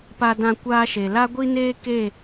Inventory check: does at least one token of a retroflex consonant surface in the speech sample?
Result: no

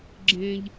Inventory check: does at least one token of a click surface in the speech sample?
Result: yes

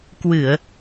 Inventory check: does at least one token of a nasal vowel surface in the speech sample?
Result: no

